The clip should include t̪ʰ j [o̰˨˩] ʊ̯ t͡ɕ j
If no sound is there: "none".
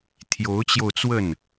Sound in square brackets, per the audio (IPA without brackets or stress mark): o˧˥